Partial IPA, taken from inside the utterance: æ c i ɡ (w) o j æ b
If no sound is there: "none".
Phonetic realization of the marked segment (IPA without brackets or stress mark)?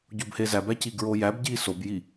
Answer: ɹ